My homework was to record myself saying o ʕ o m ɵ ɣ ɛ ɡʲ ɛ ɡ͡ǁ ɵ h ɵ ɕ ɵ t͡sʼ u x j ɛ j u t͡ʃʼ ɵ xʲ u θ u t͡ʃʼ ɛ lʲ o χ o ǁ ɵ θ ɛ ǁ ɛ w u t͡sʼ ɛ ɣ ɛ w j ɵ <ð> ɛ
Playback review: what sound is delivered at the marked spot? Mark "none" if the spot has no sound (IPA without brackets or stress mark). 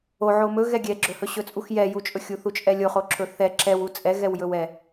w